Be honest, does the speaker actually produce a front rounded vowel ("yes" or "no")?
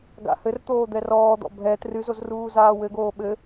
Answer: no